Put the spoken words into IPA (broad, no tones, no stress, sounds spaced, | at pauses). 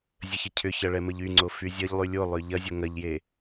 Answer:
zʲ ə ç ə cʰ ʏ ç ɐ ɭ ɛ m ə ʎ y ŋ͡ǀ o f y zʲ ɐ ʎ lˠ y lʲ o lˠ ø ʎ ɐ zʲ o ŋ ɐ ʎ j e